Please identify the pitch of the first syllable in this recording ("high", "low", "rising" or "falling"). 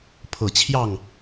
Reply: low